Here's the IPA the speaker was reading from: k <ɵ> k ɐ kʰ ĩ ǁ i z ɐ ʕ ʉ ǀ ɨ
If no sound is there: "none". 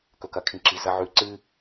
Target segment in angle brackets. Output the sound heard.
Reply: ɵ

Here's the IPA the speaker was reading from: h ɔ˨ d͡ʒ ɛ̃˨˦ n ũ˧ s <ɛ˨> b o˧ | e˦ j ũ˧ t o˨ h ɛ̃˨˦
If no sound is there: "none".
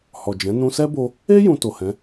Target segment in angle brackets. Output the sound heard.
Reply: ɛ˦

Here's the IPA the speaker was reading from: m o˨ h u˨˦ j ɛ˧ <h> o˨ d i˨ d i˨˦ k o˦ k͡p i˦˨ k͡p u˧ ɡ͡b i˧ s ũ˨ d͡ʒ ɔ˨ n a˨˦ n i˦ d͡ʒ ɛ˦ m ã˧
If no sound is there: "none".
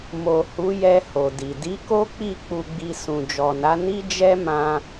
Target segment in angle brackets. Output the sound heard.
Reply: h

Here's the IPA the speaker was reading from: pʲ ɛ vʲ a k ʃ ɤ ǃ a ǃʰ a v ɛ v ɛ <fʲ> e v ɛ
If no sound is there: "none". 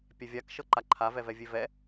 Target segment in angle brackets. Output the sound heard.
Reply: vʲ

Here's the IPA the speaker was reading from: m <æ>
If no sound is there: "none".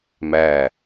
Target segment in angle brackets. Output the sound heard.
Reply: æ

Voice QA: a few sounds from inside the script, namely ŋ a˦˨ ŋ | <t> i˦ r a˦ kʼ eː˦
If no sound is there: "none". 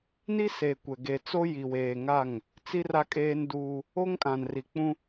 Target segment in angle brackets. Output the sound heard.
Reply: t͡s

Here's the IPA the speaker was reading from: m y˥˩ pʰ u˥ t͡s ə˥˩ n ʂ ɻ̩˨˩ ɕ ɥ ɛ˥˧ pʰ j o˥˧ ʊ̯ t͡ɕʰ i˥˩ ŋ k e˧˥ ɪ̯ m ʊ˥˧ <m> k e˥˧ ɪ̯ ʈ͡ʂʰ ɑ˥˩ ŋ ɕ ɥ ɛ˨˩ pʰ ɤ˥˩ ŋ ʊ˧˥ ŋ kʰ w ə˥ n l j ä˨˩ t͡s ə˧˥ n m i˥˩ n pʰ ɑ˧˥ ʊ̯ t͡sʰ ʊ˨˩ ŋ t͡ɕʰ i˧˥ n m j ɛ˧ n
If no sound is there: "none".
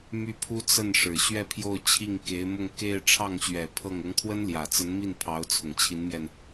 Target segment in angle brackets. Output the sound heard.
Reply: ŋ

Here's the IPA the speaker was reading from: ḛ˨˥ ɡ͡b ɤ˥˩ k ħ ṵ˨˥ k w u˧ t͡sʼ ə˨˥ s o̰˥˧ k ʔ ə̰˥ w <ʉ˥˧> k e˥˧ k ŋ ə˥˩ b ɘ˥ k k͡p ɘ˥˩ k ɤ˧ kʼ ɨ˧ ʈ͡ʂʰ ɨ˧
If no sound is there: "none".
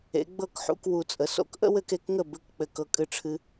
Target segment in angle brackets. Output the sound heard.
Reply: ɘ˥˧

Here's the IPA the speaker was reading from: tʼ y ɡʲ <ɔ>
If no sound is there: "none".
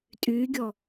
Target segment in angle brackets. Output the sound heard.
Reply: ɔ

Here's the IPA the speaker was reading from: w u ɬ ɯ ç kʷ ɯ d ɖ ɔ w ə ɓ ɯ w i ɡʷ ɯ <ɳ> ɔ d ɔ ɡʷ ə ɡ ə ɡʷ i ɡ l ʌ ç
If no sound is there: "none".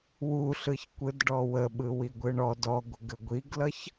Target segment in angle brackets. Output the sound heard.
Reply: ɳ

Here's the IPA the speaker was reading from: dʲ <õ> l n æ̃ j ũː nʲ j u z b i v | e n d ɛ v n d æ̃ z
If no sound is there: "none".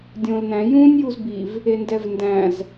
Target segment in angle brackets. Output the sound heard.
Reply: õ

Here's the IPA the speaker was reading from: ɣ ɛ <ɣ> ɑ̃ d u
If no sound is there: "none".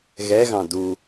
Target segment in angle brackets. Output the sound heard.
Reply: ɣ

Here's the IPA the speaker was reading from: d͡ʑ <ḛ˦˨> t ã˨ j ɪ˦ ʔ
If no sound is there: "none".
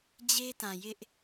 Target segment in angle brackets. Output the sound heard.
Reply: e˦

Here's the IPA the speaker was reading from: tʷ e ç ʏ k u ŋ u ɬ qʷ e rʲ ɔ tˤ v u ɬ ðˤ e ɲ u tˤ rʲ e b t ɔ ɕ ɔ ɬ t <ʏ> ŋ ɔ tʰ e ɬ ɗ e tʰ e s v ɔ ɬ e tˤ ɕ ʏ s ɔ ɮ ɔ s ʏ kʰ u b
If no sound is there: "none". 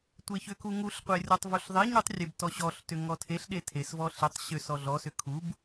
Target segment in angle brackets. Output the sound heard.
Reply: ʏ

